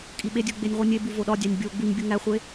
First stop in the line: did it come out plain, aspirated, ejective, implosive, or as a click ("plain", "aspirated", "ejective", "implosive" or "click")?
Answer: ejective